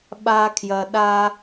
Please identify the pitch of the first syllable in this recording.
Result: low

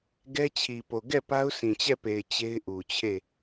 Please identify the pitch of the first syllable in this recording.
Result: high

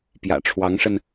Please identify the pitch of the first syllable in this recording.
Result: low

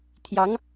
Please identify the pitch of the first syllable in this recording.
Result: rising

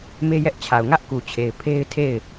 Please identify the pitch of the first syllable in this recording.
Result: high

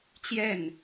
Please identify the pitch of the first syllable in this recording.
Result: falling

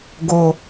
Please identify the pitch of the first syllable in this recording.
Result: low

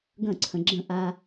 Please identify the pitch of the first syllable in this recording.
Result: falling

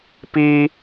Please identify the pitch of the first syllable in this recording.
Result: high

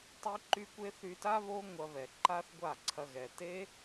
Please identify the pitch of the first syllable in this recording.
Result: high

